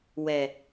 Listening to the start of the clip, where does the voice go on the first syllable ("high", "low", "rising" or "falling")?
low